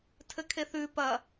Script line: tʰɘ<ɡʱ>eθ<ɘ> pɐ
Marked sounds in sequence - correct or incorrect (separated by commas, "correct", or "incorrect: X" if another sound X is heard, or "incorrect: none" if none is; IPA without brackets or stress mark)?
incorrect: kʰ, incorrect: ʉ